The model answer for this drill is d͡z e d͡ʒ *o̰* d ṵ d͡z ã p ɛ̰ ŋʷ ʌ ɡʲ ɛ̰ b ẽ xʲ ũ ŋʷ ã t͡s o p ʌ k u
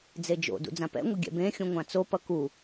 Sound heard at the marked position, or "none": o̰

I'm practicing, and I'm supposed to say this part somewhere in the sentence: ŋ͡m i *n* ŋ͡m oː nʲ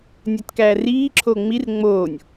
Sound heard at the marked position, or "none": r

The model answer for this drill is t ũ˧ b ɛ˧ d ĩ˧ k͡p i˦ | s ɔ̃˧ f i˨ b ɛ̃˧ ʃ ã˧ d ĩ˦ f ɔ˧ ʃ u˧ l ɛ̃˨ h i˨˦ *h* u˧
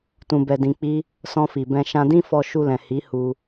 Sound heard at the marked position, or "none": h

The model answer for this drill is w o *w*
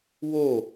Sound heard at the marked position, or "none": none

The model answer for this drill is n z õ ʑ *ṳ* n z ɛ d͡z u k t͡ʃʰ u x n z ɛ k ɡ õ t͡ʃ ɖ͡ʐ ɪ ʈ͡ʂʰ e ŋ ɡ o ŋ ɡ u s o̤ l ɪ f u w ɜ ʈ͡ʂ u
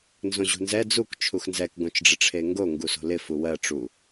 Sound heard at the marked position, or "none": ṳ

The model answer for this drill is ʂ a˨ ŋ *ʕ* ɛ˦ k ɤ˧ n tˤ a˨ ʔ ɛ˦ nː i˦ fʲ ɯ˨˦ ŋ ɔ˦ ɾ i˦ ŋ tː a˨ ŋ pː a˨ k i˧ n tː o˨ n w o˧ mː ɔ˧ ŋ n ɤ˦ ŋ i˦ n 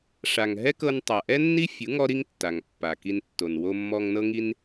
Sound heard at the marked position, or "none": ɦ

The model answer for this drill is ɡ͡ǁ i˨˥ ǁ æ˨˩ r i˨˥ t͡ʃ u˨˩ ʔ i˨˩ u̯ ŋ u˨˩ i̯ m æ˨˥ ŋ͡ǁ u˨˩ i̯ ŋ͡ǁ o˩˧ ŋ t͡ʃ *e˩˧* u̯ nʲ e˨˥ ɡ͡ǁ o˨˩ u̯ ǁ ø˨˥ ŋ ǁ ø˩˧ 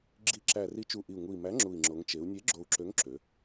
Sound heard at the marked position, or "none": e˩˧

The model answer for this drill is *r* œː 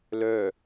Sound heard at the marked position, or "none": l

